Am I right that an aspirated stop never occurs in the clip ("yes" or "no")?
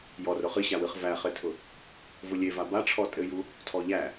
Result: no